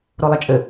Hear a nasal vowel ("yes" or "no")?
no